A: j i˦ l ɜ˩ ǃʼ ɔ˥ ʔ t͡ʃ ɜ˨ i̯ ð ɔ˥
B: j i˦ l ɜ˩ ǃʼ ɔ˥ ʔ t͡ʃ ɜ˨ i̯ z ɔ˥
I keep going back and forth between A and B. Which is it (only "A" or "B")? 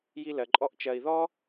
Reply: A